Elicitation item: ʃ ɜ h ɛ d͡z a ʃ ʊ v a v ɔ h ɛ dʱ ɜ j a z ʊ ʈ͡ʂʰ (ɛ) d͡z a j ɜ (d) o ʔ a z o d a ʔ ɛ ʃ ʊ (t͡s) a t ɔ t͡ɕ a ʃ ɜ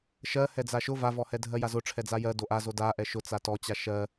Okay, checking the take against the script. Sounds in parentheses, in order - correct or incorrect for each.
correct, correct, correct

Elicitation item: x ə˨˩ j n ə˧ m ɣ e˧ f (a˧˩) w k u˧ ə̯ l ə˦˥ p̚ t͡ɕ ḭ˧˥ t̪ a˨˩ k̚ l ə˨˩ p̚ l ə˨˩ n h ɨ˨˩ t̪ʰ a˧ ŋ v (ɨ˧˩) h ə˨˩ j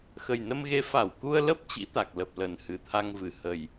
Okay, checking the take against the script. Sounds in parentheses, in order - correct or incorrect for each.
correct, correct

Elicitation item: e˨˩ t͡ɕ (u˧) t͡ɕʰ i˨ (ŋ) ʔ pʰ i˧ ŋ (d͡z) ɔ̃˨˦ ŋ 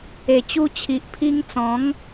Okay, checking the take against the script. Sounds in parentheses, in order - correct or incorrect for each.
correct, incorrect, incorrect

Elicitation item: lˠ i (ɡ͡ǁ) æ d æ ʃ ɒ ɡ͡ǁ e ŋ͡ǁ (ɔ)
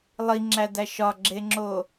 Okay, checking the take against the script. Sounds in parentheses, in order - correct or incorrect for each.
incorrect, incorrect

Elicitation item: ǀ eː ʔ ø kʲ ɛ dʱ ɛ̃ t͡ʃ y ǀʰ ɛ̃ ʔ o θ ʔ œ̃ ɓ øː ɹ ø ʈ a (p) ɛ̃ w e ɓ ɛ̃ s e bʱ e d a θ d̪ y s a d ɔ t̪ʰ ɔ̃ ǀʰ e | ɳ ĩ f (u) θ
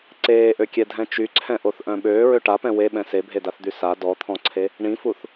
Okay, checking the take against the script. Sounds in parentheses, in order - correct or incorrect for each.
correct, correct

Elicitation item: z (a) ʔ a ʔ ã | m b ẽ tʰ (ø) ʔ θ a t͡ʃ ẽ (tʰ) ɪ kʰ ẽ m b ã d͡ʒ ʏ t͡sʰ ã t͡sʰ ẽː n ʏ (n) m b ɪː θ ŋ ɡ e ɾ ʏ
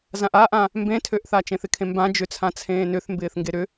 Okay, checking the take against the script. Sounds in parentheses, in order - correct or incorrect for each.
incorrect, correct, incorrect, incorrect

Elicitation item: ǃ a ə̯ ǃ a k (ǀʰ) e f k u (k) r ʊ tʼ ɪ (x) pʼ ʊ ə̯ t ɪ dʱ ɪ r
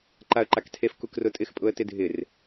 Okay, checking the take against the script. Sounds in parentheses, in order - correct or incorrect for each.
incorrect, correct, correct

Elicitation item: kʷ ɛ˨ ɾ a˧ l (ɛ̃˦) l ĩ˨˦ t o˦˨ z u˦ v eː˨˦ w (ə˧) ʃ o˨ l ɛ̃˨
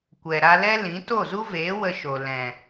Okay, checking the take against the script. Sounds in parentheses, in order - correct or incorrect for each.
incorrect, correct

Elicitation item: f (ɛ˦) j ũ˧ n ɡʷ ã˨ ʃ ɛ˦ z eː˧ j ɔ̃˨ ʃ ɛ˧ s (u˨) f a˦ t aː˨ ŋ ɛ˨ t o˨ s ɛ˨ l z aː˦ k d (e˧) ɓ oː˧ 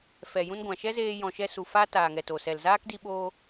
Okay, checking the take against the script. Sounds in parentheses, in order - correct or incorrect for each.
incorrect, correct, incorrect

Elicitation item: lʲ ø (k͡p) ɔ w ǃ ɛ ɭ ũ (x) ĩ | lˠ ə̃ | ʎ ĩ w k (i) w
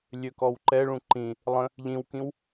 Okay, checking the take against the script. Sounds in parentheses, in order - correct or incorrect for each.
incorrect, incorrect, incorrect

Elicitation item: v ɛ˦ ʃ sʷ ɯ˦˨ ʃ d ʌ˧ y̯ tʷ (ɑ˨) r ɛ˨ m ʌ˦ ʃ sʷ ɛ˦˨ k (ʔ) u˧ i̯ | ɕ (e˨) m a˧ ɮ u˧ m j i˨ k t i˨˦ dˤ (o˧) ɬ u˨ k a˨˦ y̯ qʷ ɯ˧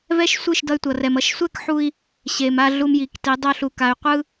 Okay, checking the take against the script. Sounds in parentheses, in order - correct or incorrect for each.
incorrect, incorrect, correct, correct

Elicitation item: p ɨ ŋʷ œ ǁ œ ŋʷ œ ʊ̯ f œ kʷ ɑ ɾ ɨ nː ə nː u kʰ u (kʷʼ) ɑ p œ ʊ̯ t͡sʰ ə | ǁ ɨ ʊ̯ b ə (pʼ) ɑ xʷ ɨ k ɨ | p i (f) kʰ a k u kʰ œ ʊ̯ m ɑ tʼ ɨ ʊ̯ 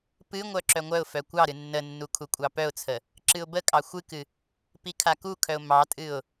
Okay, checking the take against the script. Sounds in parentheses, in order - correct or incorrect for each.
correct, incorrect, incorrect

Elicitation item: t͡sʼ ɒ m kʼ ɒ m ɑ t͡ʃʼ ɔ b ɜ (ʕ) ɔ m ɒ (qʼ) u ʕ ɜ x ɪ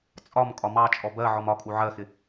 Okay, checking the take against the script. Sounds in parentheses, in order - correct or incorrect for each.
correct, incorrect

